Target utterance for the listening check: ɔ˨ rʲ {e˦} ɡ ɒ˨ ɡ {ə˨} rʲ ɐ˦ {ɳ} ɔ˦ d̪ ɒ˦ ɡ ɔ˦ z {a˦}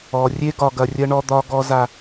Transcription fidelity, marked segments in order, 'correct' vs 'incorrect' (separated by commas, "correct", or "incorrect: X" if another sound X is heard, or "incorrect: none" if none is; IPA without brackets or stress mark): correct, incorrect: ɐ˨, correct, correct